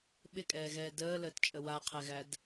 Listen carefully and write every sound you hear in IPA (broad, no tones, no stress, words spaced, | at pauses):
ɓɪkʼɛːɣɛː dəːləːtt͡ʃʼə waqʰɛɣæd